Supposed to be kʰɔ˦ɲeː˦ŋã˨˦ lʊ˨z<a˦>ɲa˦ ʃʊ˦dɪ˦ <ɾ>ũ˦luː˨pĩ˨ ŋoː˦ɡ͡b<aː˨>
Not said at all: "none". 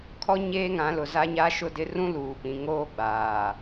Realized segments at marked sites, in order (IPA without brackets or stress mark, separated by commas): a˦, r, aː˨